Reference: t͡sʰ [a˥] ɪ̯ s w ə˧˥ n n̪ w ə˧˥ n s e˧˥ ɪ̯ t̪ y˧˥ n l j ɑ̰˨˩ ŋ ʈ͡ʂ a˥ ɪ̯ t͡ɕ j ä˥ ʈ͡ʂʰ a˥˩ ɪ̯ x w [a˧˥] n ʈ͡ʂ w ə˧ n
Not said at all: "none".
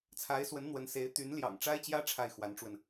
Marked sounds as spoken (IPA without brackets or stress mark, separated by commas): a˧˥, a˧˥